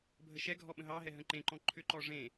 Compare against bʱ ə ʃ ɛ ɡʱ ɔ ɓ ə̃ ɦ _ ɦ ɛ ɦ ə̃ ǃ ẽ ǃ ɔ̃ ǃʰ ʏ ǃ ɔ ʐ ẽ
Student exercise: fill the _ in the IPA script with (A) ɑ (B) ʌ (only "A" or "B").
A